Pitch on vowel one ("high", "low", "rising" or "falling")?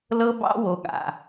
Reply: high